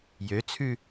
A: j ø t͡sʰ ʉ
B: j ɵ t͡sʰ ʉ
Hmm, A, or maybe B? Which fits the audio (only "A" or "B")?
A